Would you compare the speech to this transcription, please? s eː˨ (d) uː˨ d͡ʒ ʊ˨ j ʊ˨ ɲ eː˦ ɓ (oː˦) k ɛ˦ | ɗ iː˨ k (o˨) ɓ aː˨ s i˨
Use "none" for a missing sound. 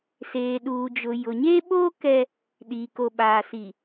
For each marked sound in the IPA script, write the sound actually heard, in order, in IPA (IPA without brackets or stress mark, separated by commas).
ɗ, oː˦, o˨